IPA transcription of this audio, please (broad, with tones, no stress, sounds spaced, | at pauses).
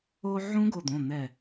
o˧ ʕ ũ˦˥ ɡ o˧˩ d̪ õ˩˧˩ n̪ ɛ˧˩